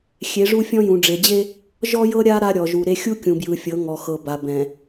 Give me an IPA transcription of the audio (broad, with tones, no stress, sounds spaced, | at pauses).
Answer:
xʲ e˨˦ ʐ u˦ fʲ ɔ̃˦ j ũ˨ ɖ͡ʐ e˨ d͡ʑ e˦ | ʒ ɔ˦ j ɤ˦ ɾʲ a˦ ɾ a˦ ɾʲ ɔ˨ ʒ u˨ ɾ e˦ xʲ u˦ kʲ ũ˨ b j ɯ˨ fʲ ɤ˨˦ ŋ ɔ˨ x ɤ˨ b a˨ b ɛ̃˨